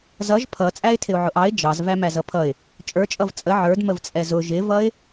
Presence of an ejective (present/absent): present